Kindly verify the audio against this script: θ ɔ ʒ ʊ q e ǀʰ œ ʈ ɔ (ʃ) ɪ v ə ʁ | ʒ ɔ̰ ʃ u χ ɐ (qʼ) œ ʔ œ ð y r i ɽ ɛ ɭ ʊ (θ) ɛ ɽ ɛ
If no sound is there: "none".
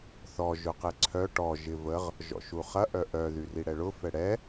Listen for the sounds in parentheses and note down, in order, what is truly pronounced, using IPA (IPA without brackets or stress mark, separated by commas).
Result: ʒ, ʔ, f